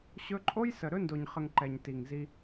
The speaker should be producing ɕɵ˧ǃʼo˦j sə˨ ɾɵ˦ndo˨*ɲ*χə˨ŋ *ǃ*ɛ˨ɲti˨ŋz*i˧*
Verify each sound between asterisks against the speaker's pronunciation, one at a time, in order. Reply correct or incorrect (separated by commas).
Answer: correct, correct, correct